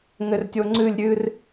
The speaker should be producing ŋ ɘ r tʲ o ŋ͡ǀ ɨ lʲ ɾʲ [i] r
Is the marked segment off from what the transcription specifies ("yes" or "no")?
yes